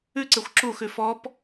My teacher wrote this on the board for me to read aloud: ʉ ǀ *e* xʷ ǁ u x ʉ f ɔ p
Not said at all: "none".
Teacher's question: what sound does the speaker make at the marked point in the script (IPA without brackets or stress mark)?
e